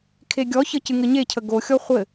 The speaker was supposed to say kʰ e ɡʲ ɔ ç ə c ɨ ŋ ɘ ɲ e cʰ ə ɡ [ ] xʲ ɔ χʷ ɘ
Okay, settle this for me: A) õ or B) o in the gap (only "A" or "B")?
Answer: B